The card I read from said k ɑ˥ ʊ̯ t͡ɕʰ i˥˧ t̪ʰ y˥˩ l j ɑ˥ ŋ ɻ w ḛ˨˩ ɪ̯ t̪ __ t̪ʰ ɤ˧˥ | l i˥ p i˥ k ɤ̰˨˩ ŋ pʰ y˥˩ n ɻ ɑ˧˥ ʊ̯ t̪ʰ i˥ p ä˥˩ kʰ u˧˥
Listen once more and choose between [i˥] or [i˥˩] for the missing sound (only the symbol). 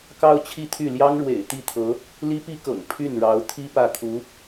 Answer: i˥˩